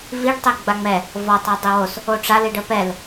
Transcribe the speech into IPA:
viɖ tˤeɡ͡baŋ͡mɛ | vɔtˤ ɛdˤiwos | oʈ͡ʂa liɖəpɛl

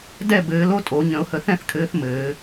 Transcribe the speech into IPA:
dɛ˥˧ bɘː˨˦lo˥tʼo˨˩˦ ɲə̃˨˩˦ʊ̯hə˨θɛ̃˥˩θkʰɘː˨˦θ mɘː˨˩˦

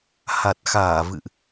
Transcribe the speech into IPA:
ha˨˩t̚xaː˧˩ vɨ̰˧˨ʔ

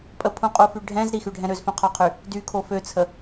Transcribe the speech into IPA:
pʼəpʰũqʼufy ɖʱɛ̃z ɾixyɖʱɛ̃ ɾøzfœ̃qʰɔqʰy | dykʰo føt͡sʰə

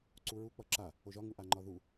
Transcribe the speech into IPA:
ǀuɹu k͡pʌǁa | oʒɒ ŋuʔaŋ͡ǃɒðu

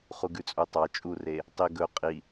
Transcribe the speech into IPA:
χuɡʉt͡sʼutˤɑ t͡ʃʼure | tˤi ɡɵ qʼi

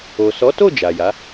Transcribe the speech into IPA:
o˨ sɔ˨˦to˦˨ d͡ʒa˨ja˨˦

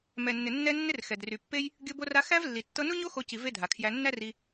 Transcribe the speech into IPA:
mɛ˨nːɪ˨nːɛ˧nːɪ˧r xɛ˨dry˨pːe˦j | ɡʲɤ˧bo˧ra˧ xæ˦vlːi˨ tːɤ˧nu˦ɲo˦ xo˧ci˨ ve˦dʱa˨kʰjæ˧ nːæ˦ri˧

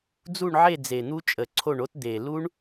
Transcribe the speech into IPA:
d͡zu˦˨ɳʕe˦˨ d͡ze˨˩n̪u˦˥ t͡ʃʼə˨˩ǀʰo˦˨ɳo˦˥t d̪e˨˩ lu˦˥ɳ

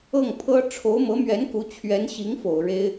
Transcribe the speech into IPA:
ɤ˥˩ŋ pʰɤ˥ ʈ͡ʂʰo˧˥ʊ̯mɤ˧˥mɥɛ˧˥nku˧˥ t͡ɕʰɥɛ˧˥nɕi˧˥ŋfo˨˩ʊ̯ ɻe˥ɪ̯

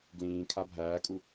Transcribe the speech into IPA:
ɡlĩː kʰabʱæːkʼu

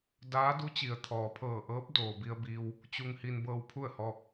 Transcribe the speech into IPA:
daː˧˥du˧˥t͡ɕi˩ə̯ t̪ʰɔː˩pʰɤː˧˩ʔɤː˧˥p̚ doː˩bi˧ə̯biː˧w | t͡ɕu˧ŋ hi˧nbɤː˧wpʰu˥˨ə̯hɔː˧k̚

